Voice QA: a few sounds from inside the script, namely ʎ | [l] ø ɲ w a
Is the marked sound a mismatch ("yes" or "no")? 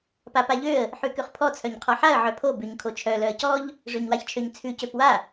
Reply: yes